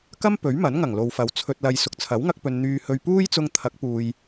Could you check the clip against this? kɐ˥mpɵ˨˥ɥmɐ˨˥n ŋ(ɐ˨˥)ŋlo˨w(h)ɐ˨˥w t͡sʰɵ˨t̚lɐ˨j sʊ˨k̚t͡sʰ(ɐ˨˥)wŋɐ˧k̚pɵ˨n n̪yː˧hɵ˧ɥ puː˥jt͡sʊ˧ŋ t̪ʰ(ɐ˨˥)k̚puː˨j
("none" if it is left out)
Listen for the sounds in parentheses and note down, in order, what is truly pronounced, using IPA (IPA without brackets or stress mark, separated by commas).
ɐ˨˩, f, ɐ˨˥, ɐ˨˥